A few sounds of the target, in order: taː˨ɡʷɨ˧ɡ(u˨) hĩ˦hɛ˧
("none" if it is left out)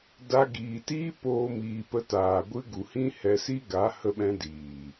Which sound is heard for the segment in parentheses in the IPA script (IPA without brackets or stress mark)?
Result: u˨